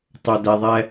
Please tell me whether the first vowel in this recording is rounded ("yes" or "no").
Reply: yes